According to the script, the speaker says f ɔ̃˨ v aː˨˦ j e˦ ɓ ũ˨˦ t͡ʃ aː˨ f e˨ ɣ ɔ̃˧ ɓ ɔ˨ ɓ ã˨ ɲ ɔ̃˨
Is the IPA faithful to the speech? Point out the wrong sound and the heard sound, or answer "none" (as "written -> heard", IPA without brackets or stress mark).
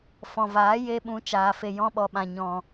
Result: ɣ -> j